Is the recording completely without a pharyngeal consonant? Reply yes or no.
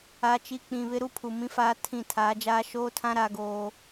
yes